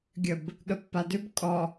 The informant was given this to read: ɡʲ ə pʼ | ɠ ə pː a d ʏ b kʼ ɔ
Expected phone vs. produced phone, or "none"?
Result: pʼ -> b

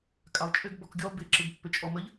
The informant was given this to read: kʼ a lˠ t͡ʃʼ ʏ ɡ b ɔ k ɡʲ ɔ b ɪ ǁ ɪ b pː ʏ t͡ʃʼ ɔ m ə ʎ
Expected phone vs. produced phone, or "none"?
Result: none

